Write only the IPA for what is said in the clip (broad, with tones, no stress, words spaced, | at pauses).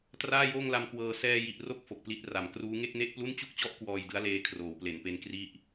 traː˥˩joː˥˩ŋla˧mkwɤː˧ sɛː˧ji˨˩ʔro˦˥k̚ fo˨˩k̚pli˦˥t̚ra˨˩m kruː˦˥ ŋe˥˩k̚ne˥˩ʔplu˥˩n t͡ɕu˥˩k̚t͡ɕɔ˥˩ʔ kwɔː˧jdɯ˦˥a̯leː˧ kʰroː˩˦wple˩˦npe˦˥n kri˥˩ʔ